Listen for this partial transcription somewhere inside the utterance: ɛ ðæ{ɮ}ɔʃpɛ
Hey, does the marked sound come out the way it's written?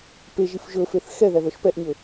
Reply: no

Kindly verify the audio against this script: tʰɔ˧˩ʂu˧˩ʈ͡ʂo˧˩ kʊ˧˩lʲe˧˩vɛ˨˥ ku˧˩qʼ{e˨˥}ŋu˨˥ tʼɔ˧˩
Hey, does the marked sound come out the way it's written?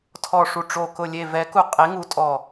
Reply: yes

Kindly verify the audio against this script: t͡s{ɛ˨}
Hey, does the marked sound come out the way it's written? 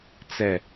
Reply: yes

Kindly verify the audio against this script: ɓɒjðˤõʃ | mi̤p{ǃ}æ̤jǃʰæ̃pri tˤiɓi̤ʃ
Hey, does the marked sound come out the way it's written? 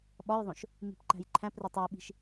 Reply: yes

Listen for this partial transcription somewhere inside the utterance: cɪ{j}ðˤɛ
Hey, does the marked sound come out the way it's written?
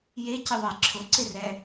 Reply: no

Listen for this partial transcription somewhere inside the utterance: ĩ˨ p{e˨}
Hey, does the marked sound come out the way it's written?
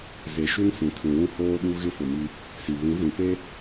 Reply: no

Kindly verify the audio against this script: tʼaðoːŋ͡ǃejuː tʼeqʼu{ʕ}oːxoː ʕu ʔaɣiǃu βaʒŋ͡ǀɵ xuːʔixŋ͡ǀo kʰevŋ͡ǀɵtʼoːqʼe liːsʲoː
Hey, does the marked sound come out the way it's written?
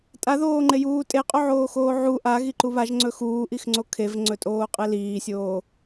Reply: yes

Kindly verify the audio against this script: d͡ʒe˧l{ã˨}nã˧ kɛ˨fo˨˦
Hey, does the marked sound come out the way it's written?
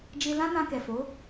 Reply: no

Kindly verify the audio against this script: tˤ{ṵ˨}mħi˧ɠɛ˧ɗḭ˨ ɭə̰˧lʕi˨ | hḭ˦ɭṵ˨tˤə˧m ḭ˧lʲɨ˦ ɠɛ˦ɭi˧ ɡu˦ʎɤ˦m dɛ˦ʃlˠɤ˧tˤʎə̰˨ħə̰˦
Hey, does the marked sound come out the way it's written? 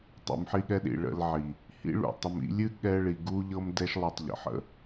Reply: yes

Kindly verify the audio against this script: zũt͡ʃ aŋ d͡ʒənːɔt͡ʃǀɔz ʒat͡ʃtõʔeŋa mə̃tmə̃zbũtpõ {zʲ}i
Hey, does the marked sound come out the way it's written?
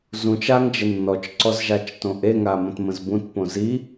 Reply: no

